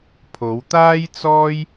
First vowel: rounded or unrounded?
rounded